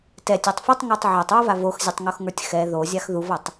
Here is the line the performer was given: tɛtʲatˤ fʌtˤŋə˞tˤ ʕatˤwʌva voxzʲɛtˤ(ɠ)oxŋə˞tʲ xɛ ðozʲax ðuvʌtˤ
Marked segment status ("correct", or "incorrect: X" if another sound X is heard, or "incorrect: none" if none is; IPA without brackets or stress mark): incorrect: ŋ